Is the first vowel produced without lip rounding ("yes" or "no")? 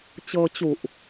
yes